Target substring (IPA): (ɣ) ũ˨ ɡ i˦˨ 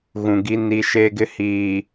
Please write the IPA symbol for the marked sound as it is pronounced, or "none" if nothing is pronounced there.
ɣ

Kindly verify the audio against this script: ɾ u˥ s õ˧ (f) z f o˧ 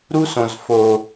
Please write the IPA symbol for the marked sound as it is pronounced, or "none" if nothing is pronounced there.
none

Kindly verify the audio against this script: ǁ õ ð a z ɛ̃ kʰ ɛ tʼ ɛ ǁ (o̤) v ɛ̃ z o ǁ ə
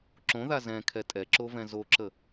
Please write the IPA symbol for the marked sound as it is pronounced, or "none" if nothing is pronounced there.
o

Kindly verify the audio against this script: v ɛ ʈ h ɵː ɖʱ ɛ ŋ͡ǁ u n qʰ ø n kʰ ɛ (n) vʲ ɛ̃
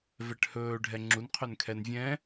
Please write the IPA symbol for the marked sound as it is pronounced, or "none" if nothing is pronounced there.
n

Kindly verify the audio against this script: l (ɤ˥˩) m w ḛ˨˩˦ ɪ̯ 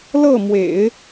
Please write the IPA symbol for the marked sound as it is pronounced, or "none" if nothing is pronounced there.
ɤ˥˩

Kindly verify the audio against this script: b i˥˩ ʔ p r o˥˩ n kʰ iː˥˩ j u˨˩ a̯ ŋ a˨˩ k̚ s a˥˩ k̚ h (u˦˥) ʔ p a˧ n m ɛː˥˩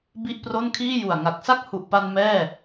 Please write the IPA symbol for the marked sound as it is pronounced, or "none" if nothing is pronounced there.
u˨˩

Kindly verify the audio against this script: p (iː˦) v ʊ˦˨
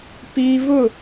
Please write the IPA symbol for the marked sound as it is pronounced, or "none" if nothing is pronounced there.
iː˦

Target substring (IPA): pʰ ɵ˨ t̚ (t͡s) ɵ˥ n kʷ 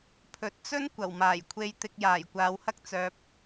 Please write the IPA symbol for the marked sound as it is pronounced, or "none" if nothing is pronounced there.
t͡s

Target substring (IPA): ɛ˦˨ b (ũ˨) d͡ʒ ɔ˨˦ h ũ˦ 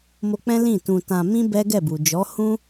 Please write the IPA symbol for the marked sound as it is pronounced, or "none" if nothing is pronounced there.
u˨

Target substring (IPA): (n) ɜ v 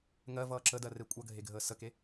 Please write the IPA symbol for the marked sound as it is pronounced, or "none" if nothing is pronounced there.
ŋ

